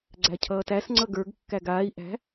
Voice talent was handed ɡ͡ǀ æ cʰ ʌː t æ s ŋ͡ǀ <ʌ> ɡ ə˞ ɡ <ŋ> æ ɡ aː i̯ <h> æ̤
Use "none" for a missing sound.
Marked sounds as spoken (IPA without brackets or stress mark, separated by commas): ʌ, kː, ʔ